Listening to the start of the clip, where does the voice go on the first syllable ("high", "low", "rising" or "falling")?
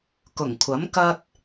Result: low